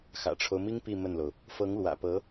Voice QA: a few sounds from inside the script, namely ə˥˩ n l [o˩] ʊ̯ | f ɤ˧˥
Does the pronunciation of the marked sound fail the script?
no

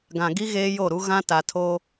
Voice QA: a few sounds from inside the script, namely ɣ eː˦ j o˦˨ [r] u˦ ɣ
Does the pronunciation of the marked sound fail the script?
yes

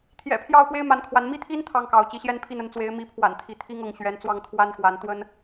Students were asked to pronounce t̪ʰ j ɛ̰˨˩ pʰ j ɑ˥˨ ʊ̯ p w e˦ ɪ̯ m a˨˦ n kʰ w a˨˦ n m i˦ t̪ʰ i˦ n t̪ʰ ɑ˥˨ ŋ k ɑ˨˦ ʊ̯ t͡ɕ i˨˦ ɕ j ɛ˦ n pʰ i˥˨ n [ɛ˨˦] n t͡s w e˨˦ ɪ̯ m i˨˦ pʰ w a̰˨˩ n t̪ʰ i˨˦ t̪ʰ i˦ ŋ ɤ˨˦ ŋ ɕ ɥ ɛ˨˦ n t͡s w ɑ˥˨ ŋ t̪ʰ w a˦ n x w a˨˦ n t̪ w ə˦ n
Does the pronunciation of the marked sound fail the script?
yes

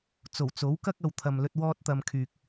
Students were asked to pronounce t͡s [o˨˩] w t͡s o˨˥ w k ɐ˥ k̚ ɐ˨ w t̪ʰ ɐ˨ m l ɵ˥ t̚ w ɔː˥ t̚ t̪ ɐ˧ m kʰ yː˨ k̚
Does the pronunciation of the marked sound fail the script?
no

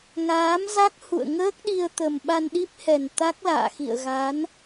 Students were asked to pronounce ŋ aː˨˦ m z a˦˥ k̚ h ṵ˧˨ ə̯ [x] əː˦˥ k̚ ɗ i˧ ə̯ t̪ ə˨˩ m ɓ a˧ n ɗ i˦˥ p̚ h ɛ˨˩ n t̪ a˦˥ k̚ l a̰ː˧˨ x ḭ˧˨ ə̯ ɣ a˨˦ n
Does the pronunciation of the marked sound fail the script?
yes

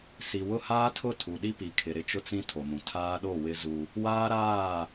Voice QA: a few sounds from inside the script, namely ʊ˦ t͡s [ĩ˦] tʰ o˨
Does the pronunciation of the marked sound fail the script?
no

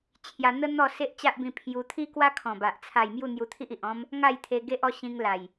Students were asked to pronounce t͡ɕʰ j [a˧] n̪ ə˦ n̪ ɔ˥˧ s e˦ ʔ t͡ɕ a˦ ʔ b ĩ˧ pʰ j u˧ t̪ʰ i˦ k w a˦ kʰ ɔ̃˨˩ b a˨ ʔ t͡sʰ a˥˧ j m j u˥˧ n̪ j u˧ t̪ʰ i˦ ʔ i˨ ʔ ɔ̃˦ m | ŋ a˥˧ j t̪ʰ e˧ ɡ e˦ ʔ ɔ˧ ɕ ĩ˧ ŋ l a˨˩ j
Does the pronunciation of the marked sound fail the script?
no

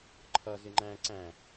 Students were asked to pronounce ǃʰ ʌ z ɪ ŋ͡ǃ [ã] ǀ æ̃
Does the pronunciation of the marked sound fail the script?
yes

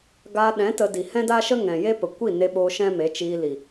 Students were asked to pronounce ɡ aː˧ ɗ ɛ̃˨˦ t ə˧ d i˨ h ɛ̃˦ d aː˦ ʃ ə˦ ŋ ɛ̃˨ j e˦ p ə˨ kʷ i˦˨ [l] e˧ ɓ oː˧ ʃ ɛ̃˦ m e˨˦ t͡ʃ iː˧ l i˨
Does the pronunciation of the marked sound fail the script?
yes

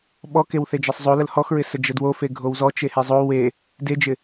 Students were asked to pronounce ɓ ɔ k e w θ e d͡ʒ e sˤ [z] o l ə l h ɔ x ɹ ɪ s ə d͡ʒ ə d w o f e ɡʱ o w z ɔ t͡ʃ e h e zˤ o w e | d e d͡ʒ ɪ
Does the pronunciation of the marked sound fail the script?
yes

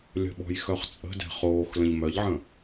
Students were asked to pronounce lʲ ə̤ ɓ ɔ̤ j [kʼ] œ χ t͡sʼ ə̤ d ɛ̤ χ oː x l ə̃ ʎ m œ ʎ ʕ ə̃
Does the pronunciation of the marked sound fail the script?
yes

